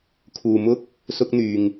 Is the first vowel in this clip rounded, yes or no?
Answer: yes